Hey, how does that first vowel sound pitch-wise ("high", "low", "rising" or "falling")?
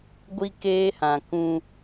high